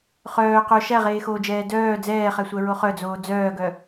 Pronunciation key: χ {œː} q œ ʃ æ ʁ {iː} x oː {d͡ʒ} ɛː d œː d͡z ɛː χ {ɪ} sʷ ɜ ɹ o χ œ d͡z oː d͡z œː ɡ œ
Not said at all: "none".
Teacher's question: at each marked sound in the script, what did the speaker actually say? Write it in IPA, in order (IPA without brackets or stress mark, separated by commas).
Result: œː, eː, d͡ʒ, ɛ